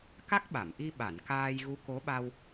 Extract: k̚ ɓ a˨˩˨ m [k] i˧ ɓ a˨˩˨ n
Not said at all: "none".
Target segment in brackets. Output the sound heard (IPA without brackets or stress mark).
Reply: ʔ